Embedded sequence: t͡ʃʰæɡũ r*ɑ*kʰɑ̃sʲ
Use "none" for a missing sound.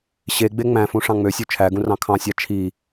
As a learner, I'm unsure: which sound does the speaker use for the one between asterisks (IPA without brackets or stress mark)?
ɑ̃